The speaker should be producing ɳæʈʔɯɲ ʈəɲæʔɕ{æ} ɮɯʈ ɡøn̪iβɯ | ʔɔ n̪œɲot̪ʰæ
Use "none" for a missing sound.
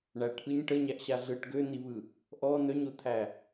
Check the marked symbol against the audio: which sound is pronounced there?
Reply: a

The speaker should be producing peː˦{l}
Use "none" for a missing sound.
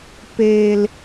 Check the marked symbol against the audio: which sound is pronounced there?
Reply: l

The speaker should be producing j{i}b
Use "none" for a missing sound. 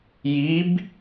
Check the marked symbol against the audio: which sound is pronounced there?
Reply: i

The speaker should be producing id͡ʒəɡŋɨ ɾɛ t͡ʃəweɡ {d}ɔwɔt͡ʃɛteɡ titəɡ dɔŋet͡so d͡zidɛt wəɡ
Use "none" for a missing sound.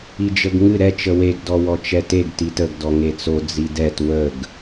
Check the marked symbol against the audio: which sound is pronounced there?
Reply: d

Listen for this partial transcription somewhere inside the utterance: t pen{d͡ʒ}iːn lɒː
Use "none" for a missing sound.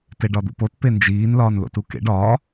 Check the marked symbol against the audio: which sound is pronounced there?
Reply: d͡ʒ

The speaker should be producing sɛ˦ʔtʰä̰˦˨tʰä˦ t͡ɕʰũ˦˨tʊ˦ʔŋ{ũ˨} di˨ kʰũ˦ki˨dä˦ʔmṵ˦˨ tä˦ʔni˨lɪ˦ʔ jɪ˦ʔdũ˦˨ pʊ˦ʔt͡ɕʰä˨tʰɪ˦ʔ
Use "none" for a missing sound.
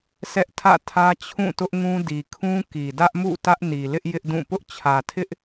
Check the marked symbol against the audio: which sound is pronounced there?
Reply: ũ˦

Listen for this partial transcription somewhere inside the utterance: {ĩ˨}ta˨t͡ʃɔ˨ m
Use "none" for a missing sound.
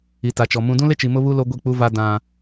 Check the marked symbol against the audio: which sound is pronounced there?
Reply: i˨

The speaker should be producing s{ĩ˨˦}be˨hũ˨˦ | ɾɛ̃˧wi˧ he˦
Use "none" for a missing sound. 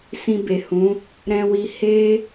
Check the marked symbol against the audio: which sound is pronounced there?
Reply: ĩ˧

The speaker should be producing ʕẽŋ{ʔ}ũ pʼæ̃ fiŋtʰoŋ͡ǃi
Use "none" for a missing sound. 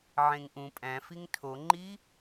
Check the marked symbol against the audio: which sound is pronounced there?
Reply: ʔ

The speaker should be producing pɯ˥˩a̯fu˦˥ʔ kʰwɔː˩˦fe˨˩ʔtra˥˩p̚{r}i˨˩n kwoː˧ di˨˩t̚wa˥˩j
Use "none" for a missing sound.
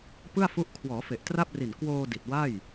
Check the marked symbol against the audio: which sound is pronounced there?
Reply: r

